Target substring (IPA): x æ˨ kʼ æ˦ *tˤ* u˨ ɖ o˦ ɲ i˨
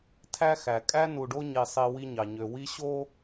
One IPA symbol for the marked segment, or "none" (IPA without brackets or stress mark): n